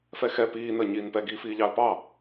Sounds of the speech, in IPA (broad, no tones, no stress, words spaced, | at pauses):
fɛxɛ piː nəːɲiːnpɛ ɡiːfiːʎɑə̯pɑ